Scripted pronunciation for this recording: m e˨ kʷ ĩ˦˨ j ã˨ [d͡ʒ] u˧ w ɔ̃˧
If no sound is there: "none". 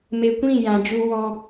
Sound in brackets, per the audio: d͡ʒ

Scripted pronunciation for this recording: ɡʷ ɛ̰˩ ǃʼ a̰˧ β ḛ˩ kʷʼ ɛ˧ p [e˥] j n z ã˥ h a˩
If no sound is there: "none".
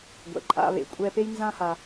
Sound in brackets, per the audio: e˥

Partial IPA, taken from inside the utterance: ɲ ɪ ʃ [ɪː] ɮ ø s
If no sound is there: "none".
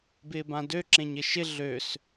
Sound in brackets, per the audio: ɪ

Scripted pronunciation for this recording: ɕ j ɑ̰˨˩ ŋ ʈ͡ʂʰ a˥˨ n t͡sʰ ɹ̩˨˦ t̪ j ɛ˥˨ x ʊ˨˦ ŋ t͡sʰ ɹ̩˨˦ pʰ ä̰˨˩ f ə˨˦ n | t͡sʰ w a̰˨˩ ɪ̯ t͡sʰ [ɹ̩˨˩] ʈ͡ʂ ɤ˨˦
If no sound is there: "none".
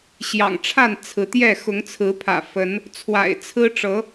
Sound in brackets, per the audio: ɹ̩˦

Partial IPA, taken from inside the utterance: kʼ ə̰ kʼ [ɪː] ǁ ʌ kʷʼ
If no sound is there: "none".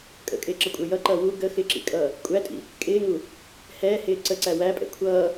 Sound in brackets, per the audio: ɪː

